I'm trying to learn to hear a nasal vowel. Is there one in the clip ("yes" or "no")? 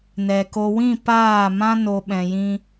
yes